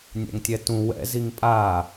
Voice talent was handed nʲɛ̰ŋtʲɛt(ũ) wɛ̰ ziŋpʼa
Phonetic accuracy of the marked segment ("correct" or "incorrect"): correct